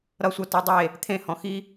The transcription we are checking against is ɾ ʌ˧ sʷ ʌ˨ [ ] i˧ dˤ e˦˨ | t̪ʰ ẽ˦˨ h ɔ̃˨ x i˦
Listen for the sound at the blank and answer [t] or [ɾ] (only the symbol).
t